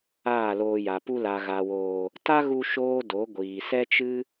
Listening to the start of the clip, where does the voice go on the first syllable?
falling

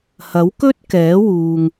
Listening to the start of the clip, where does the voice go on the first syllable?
rising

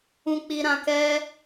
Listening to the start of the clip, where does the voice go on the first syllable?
high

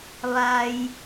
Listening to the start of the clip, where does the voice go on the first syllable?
low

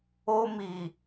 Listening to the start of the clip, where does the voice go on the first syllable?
high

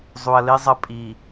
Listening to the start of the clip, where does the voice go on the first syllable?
low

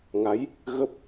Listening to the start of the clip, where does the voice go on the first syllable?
rising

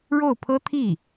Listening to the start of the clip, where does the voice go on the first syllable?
falling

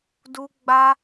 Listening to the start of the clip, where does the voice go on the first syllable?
high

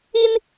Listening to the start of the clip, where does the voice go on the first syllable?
high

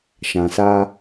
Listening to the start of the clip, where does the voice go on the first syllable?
low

